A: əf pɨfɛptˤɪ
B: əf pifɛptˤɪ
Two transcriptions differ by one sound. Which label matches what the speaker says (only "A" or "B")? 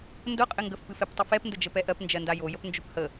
A